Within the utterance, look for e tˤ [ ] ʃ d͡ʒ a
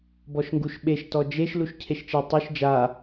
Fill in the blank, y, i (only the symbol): y